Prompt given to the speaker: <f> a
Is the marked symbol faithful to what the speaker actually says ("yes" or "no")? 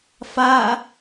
yes